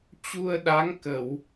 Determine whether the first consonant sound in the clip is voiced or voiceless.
voiceless